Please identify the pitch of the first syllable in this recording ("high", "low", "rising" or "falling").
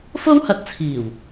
high